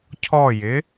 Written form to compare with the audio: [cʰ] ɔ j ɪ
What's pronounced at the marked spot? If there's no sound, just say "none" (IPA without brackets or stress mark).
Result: cʰ